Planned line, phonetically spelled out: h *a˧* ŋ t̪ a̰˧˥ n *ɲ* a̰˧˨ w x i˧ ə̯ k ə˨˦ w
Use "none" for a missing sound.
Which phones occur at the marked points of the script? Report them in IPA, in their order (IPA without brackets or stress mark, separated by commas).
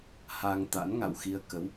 a˧, ŋ